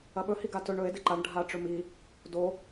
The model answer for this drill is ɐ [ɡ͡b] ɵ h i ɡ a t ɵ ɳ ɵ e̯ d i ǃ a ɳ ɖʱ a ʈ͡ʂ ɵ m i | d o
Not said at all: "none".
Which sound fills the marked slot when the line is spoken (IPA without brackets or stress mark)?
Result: ɓ